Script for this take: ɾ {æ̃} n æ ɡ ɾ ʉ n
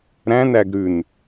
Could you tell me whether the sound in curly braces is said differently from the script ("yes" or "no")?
no